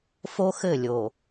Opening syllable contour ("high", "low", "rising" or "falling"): high